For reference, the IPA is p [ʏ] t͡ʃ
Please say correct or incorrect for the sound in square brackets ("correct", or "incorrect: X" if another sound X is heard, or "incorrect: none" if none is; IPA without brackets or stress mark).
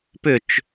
correct